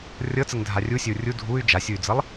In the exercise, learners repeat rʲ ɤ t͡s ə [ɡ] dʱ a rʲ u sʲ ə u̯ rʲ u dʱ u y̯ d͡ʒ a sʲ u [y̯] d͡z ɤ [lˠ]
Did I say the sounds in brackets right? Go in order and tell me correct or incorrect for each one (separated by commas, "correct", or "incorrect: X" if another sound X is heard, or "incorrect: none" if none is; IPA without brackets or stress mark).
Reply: incorrect: ŋ, correct, correct